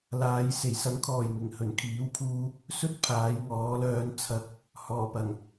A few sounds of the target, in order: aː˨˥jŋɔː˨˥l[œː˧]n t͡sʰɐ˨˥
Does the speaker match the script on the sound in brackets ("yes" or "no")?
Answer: yes